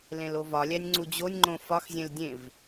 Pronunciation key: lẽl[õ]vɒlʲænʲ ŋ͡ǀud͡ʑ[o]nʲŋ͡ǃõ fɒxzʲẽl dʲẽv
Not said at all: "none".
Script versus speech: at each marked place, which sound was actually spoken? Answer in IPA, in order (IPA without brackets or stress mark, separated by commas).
o, o